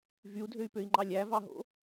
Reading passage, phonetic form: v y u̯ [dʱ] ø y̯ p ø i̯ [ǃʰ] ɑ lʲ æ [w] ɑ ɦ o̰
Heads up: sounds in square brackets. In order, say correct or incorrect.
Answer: correct, incorrect, incorrect

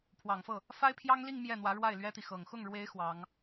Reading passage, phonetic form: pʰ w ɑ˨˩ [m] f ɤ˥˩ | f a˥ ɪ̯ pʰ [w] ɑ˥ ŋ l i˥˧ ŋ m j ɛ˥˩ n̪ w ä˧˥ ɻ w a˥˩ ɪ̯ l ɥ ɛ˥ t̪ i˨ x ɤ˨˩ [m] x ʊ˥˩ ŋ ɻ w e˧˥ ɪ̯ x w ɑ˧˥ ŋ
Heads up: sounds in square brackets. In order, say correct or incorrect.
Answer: incorrect, incorrect, incorrect

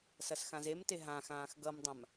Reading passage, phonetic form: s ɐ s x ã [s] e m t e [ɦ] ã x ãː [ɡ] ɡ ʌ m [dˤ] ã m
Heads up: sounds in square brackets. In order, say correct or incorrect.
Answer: incorrect, correct, incorrect, correct

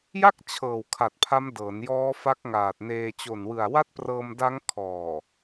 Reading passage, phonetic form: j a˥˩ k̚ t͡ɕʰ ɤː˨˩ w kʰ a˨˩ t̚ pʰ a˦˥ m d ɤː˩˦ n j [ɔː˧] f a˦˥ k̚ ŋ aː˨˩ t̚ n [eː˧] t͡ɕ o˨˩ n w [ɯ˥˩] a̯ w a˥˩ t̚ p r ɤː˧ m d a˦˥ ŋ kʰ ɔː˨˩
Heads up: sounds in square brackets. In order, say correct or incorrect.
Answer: incorrect, correct, incorrect

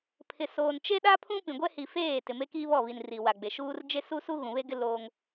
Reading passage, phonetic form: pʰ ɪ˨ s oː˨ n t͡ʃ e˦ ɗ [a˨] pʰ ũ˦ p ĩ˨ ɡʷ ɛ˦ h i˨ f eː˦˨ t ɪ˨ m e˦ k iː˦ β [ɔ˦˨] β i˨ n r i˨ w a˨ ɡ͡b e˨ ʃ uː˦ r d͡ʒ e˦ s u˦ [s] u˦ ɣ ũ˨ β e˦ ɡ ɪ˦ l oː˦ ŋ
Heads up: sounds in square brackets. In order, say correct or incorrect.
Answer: incorrect, correct, correct

